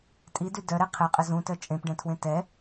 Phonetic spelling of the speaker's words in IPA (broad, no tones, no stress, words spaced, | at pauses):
tʼidy dœɾɛ qʰɛqʼə zũtœ t͡ʃʼẽpɖɛ̃tʰwẽ tɛ